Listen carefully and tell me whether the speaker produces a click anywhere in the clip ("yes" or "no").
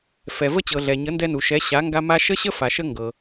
no